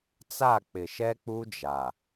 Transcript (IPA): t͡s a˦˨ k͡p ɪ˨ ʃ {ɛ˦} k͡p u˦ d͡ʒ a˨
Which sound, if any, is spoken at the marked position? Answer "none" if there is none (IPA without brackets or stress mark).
ɛ˦